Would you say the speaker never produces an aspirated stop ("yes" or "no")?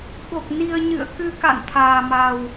no